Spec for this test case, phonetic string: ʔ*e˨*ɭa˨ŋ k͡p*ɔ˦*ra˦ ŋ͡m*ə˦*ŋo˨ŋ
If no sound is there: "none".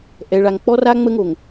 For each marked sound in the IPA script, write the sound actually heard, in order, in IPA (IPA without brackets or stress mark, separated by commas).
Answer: ɛ˨, ɔ˦, ə˦